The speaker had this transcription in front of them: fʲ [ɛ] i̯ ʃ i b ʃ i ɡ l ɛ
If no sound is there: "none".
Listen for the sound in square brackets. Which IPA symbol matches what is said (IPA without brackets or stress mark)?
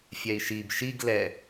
ɛ